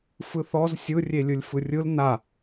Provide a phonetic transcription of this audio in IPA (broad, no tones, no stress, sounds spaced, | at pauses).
f ɯ θ ɔ z sʲ ɯ rʲ e lʲ ɯ lʲ f ɯ rʲ ɯ l n a